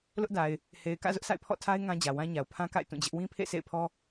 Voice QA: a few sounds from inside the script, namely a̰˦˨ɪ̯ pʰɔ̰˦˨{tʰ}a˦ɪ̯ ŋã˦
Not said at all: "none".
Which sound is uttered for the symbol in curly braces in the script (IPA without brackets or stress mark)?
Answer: tʰ